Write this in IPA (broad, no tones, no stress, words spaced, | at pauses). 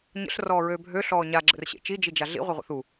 ɲə̰ɬ rɔːɹøːbʱø ɬɔːɲa ɡ͡ǁə̰rɕḛt͡ʃi d͡ʒid͡ʒaɮḭ ʁʷeʁʷə̰θu